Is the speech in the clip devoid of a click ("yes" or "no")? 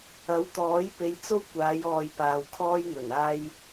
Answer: yes